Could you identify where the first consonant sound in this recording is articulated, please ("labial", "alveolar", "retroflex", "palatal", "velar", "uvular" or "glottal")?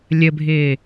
alveolar